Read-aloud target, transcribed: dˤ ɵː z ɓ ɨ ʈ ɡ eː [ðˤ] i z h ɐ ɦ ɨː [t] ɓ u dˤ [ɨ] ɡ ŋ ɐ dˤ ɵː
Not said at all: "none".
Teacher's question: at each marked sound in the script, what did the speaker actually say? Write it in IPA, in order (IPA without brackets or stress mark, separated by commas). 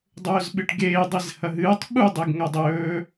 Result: dˤ, tˤ, e